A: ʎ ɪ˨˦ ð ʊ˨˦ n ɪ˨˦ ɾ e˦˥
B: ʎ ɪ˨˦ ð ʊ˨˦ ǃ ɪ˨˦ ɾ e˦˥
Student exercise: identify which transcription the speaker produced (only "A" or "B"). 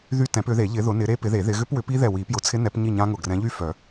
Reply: A